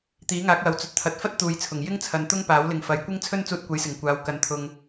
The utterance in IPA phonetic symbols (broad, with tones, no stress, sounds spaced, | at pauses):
t̪ iː˨˥ ŋ aː˨˥ k̚ w ɐ˨˧ w t͡s ɵ˧ t̚ t̪ʰ ɐ˧ t̚ f ɐ˥ t̚ t̪ uː˨˧ j t͡sʰ ʊ˨˩ ŋ j ɪ˥ ŋ t͡sʰ ɐ˨ n t̪ ʊ˥ ŋ p aː˨˥ w l ɪ˨ ŋ f ɐ˨ j kʷ ɪ˥ ŋ t͡sʰ ɵ˥ n t͡s uː˧ t̚ kʷ ɐ˨˥ j s ɪ˨˩ ŋ kʷ aː˨ w k ɐ˨ n t̪ʰ ʊ˨ ŋ